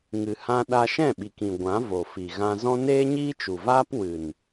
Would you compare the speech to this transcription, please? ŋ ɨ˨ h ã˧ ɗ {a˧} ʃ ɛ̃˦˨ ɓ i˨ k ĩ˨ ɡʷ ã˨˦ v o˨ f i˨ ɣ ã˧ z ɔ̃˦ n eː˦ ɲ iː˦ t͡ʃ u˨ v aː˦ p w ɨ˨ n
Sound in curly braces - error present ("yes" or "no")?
no